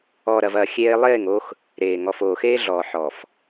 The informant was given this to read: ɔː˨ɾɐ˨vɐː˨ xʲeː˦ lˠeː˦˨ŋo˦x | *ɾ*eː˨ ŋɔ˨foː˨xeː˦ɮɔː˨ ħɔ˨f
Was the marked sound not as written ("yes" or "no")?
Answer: no